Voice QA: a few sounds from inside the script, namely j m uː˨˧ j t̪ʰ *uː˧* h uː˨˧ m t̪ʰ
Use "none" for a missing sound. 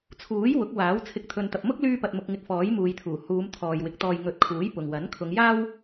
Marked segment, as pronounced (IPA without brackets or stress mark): uː˨˩